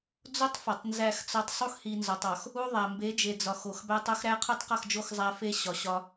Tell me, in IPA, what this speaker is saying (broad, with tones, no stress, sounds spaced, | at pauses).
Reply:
d͡z o˦ tˤ f ɒ˨ tˤ n z æ˦˨ x t͡s ɒ˦ tˤ sˤ u˦ x h i˨ n z ɒ˨ tˤ ɒ˨ x | u˦ ðˤ æ˨ m b e˨˦ d͡ʒ e˨ d͡z ɒ˨ x o˨ x b æ˦ tˤ o˦ x ɾ æ˦ qʰ u˦ tˤ q ɒ˦˨ x d͡ʒ o˦˨ x zˤ æ˦ f e˦ ɕ ɒ˨ ɕ ɒ˦